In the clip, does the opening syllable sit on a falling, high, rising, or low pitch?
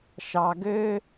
low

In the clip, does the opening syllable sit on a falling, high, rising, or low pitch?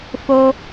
high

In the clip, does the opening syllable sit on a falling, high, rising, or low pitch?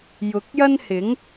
rising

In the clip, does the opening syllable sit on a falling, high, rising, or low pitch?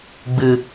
low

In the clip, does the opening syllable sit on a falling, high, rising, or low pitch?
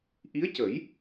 rising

